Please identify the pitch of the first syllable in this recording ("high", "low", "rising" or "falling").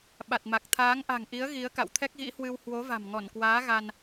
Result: low